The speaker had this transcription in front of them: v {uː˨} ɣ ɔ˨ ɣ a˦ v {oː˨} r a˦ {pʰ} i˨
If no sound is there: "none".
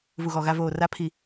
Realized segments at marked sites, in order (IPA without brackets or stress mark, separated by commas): u˨, oː˨, pʰ